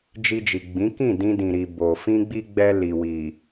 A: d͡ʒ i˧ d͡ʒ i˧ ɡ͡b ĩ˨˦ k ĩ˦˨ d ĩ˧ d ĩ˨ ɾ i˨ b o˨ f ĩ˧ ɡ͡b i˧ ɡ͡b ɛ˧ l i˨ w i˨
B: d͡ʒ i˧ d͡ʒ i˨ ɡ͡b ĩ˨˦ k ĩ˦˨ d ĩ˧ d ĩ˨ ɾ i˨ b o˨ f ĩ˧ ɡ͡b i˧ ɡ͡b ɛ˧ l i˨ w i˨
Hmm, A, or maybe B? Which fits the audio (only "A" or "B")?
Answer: B